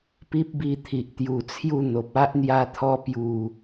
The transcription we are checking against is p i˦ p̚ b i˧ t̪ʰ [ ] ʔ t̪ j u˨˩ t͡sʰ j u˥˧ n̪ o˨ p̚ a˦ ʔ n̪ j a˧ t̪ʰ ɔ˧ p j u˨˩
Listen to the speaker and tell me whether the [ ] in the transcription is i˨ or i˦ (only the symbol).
i˨